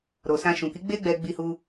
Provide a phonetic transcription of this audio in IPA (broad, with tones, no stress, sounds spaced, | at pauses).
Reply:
ɾ o˨ s ã˧ ʃ ũ˨ k i˨˦ ɡ͡b e˦ ɡ͡b ɛ˧ ɡ͡b i˧ h u˧